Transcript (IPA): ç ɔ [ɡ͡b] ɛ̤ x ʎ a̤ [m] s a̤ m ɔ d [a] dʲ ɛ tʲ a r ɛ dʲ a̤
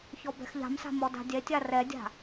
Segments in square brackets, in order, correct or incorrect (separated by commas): incorrect, correct, incorrect